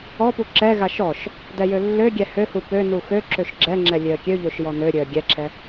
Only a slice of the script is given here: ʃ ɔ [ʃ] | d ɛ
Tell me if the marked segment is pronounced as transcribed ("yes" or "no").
yes